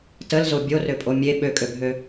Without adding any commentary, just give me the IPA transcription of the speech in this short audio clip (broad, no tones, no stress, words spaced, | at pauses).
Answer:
təlzo bʲorøpʼo mʲe ɓøkʼøbʱø